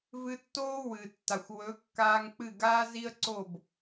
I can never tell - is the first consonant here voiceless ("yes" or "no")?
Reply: no